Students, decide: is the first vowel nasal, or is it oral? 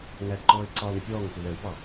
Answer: oral